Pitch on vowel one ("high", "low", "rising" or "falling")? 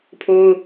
high